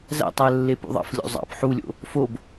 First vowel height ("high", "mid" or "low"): low